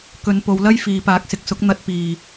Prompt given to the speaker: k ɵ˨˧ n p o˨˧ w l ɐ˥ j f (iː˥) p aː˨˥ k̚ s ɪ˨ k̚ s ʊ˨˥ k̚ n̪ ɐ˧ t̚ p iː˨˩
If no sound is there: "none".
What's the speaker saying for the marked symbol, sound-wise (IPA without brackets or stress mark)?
iː˨